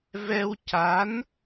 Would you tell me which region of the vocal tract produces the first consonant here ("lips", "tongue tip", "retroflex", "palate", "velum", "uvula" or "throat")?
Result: lips